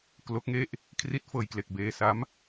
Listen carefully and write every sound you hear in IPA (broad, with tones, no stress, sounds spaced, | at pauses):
k l o˦˥ k̚ ŋ e˥˩ ʔ | kʰ r i˦˥ t̚ f ɤː˧ j k l e˨˩ k̚ b eː˧ s a˦˥ m